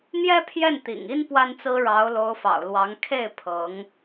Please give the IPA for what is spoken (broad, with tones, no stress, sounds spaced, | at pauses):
n̪ j ɛ˥ pʰ j ɛ˥˩ n t̪ ḭ˨˩ ŋ i˥ n p w a˥ n t͡s ɹ̩˥ ɻ ɑ˧˥ ʊ̯ l o˧˥ ʊ̯ f ɑ̰˨˩ ʊ̯ l w ɑ˧˥ ŋ kʰ e˥˩ ɪ̯ pʰ ɤ˧˥ ŋ